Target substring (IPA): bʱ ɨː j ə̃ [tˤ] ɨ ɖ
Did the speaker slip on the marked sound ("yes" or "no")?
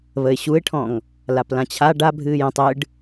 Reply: no